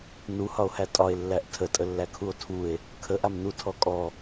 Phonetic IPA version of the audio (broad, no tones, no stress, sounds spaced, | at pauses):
n u h ɒ o̯ h æ tʼ ɒ e̯ lː æ ʔ tʰ ə tʼ ə lː æ kʰ u o̯ tʰ u e̯ | kʰ ə ʔ a m n u tʰ ɔ kʼ ɔ